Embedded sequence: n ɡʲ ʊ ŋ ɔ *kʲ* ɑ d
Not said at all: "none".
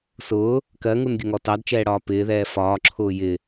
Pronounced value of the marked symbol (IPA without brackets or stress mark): t